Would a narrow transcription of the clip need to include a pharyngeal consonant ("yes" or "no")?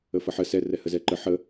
yes